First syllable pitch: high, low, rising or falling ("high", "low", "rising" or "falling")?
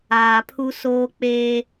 low